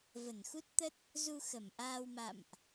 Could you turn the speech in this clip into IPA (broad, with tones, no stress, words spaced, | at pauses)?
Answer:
və˧˩nxu˦˥t̚t̪ə˦˥t̚ | zu˧xə˧˩mʔaː˧wma̰˧˨mʔ